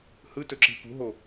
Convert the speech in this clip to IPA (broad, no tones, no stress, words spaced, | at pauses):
hɯtɵǁi̤ pṳɦo